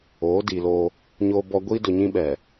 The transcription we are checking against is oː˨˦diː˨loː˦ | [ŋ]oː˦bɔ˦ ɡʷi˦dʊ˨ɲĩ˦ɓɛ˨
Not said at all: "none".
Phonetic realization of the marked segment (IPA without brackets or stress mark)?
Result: ɲ